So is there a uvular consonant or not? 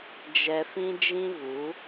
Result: no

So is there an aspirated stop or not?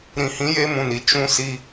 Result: no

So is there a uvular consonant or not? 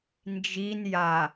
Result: no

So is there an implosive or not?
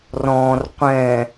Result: no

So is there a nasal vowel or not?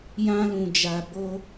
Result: yes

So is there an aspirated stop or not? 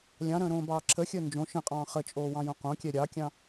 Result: yes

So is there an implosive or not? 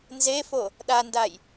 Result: yes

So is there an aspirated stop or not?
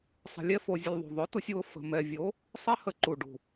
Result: no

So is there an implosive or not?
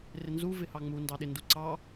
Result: yes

